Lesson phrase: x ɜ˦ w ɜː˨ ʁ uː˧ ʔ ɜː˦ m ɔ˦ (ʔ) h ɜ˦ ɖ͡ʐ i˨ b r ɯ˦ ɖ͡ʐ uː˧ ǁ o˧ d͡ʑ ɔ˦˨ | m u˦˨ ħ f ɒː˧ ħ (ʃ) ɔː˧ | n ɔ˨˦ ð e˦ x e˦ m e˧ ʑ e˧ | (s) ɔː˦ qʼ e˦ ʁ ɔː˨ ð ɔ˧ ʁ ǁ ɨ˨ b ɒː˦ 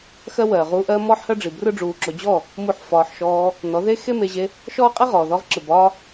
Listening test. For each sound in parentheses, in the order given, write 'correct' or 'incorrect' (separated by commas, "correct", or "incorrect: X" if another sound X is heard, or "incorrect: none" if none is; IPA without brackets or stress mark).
incorrect: ħ, correct, incorrect: ʃ